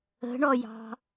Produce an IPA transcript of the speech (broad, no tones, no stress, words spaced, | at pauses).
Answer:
ə̤ɳɔjɑ̤